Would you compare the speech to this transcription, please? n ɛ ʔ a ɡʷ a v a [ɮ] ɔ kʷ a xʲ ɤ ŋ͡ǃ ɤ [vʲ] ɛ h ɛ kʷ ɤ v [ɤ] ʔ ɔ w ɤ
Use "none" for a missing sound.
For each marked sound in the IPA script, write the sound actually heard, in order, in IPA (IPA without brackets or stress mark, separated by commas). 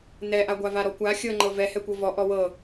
ɾ, v, ɔ